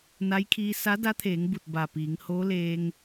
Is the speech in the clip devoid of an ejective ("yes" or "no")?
yes